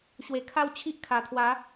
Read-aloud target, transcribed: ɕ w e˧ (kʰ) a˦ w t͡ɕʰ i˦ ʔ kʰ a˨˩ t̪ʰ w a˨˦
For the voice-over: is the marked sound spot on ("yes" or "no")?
yes